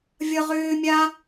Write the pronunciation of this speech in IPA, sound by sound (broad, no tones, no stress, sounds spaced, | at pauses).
vʲ ʌ ʁ ʏː mʲ a